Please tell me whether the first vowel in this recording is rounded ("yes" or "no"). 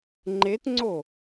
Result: no